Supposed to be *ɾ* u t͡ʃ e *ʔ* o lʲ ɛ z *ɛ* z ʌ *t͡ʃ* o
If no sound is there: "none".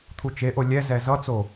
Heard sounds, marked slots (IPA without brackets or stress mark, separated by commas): t̪ʰ, ʔ, ɛ, t͡s